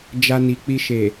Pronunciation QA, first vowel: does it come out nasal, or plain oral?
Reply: oral